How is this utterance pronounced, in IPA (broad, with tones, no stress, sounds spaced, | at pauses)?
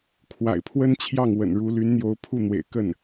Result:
kʰ w a̰˨˩ ɪ̯ pʰ w ə˥ n t͡ɕʰ j ɑ˥˩ ŋ w ə̰˨˩ n ɻ u˧˥ l y˧˥ n n̪ j o˧˥ ʊ̯ pʰ u˥˩ n̪ w ḛ˨˩ ɪ̯ k ə˥˩ n